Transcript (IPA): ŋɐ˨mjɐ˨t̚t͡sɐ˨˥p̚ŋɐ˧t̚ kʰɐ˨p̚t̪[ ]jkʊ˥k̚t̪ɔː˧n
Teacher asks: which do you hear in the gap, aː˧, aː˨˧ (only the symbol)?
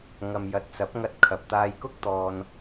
aː˧